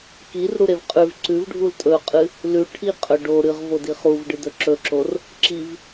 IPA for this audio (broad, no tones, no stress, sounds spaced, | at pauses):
k i r ɾ u ɾ e v qʼ ʉ v ǀ ʉ v ɖʱ u l tʼ ɵ qʼ ɨ | l ʉ ʈʰ i qʼ ɵ ɖ o ɾ ɨ ʁ v o d i χ u v ɖ ɨ d ɵ ǁ ɵ ǁ o r | ǁ i v